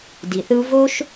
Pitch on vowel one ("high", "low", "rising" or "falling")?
low